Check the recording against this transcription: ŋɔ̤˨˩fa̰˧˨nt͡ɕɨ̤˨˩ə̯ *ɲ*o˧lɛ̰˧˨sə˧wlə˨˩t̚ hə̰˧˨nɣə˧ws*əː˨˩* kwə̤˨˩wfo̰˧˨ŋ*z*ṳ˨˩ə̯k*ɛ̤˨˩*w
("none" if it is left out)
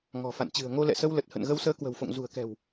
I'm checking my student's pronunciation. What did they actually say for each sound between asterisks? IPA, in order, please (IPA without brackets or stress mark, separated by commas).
ŋ, əː˨˦, z, ɛ̤˨˩